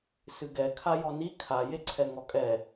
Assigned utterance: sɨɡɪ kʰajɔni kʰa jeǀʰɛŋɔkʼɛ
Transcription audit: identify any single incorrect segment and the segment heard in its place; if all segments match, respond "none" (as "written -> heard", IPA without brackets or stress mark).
ɪ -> ɛ